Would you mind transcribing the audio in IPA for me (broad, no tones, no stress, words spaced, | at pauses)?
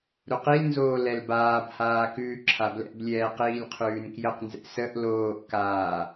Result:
ɾuqilnzoː lɛlbaːbhaː kʉːǁʰablɛ̰blʲɛː qiːlʲqʰʉːnkjəqnzɛ̰ səʔ loːʔkaː